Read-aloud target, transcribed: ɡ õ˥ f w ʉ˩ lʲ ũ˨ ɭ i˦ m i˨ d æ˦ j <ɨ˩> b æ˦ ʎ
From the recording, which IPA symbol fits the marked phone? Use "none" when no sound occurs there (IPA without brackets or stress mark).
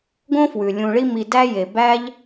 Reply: e˩